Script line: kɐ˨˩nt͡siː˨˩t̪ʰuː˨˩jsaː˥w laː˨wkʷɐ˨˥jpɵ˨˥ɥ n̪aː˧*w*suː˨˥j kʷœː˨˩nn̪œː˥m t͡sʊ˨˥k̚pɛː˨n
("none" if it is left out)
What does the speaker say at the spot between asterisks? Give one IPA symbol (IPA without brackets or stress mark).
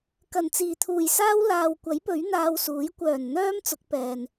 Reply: w